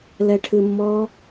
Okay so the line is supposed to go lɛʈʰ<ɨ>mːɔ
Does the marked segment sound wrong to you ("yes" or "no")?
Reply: no